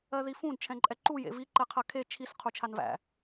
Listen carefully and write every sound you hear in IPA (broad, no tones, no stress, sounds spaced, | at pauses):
ɜ ð i f ũ d t͡ʃʰ ɛ̃ ǃʼ ɛ ǃ u j ḛ v i ǃ ɛ qʰ ɜ kʰ e t͡ʃʰ i s qʰ u t͡ʃʰ a n v æ̰